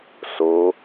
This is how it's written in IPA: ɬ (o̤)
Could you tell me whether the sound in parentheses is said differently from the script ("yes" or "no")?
yes